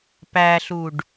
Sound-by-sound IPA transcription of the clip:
p æ ɬ u ɖ

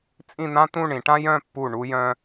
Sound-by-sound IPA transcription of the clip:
t͡sʼ ĩ˥˧ n̪ ã˥ t̪ ũ˥˧ ɳ ĩ˩˧ ʈ ã˥ j œ̃˥˧ pː u˧˩ ɳ u˧ j œ̃˧

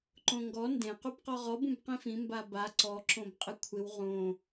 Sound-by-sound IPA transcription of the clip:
ǃ õ ŋ ɡ ɔ n d ẽ q u b q ɔ ʁ ɔ b ũ b q ĩ f ĩ m b a b a ǀ ɔ ǁ õ b qʼ ɪ kʷʰ ɪ w ʁ õ

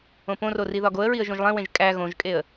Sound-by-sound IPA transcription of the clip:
õ p õ r o r i ð ɒ ɡ o ə̯ ɹ i ə̯ ʒ õ ʒ lˠ ẽ w ẽ ʒ kʼ æ ɣ õ ʒ kʼ e ə̯

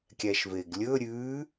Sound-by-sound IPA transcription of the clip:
kʲ æ ʃ v e ɡ lʲ ɵ ɾʲ ʉ

